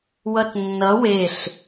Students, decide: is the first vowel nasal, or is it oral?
oral